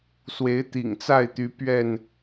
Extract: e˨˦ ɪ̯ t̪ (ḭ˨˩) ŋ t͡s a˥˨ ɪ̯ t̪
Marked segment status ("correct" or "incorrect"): correct